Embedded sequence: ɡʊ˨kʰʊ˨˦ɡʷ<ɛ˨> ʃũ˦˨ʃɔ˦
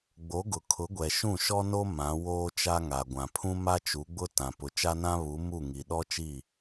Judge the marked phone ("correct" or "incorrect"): correct